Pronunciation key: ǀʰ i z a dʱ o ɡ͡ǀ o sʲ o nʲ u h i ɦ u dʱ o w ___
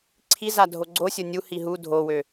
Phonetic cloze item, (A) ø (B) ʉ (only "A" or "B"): A